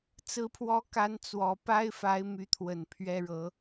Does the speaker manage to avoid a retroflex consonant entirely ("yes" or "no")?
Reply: no